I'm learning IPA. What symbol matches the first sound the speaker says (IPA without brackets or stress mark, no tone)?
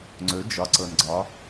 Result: ŋ͡ǀ